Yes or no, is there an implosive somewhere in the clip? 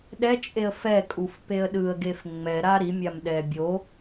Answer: yes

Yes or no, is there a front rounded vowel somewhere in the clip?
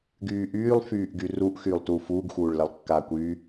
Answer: yes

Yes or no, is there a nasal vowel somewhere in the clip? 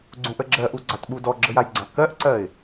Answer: yes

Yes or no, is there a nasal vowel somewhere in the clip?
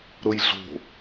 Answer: no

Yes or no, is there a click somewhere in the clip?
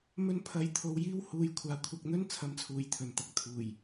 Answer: no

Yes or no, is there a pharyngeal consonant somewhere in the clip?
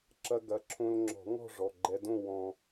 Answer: no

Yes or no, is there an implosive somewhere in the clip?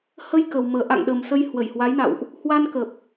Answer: yes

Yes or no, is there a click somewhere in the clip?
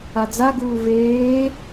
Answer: no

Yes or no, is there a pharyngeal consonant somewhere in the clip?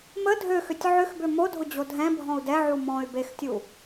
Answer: yes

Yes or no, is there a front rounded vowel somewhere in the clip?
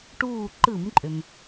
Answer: yes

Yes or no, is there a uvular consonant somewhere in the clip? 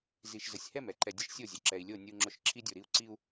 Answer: no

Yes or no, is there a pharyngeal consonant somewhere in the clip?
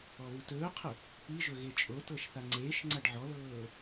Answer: yes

